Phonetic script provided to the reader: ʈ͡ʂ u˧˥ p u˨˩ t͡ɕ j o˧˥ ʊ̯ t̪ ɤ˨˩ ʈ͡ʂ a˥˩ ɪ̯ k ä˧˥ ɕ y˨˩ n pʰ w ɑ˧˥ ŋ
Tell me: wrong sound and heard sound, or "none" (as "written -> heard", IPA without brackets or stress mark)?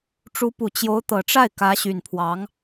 none